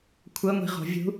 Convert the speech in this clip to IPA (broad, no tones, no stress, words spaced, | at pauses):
kʷʰɤŋʷi̤ ʁo̤vʲṳ